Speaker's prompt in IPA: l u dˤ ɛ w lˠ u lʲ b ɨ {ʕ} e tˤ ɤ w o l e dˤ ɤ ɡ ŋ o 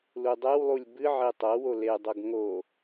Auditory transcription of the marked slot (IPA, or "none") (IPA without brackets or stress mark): ʕ